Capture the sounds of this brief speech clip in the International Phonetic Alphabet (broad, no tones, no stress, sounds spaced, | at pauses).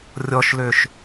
rʲ ɔ ʃ l ø ʃ